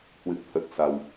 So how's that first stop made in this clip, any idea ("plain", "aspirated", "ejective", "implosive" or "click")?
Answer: aspirated